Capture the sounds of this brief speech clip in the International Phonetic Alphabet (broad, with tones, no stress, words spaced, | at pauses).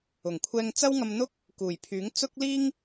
ʊ˨˩ŋkʷʰɛː˧ŋt͡sɐ˥w ŋɐ˧mn̪ʊ˥k̚ | kuː˨˩jpʰyː˨˥ŋ t͡sʊ˥k̚liː˥ŋ